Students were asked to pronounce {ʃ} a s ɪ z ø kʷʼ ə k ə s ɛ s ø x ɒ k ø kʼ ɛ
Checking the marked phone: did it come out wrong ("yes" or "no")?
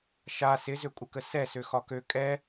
no